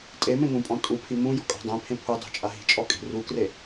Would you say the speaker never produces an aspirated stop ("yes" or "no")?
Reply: no